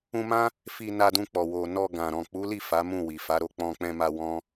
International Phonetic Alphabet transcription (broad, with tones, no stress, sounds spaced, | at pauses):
ũ˧ m ã˦ | f i˧ n a˧ d ũ˧ k͡p ɔ˨ w o˨ n ɔ˧ ɡ ã˨ ɾ ɔ̃˨ k͡p u˨˦ l i˦˨ f a˨˦ m ũ˦˨ w i˨ f a˨˦ ɾ o˦˨ k͡p ɔ̃˧ k͡p ɛ̃˧ m a˧ w ɔ̃˦